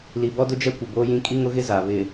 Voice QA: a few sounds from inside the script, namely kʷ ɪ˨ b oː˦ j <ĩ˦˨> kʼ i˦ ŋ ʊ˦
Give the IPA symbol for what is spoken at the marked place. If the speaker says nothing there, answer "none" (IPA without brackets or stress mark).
ĩ˦